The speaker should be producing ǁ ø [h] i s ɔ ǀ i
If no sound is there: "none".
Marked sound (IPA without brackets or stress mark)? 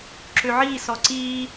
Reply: ʕ